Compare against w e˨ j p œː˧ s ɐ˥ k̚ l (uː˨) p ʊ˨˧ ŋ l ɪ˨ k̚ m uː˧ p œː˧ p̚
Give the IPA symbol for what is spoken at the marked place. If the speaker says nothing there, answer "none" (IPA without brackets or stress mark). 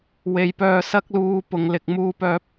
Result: uː˧